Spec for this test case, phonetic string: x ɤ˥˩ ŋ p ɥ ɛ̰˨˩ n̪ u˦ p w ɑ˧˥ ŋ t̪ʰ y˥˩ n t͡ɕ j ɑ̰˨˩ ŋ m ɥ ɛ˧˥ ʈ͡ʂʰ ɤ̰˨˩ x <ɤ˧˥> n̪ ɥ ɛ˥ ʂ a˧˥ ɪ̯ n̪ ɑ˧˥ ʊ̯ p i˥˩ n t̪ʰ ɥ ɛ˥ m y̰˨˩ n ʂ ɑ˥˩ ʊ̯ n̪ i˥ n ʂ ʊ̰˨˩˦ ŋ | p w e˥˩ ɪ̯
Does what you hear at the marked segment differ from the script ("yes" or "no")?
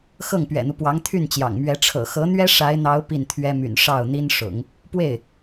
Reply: no